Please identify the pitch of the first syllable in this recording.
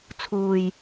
low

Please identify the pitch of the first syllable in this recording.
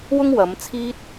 high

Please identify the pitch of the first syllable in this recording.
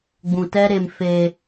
low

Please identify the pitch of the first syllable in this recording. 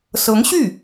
rising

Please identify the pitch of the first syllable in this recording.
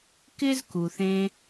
high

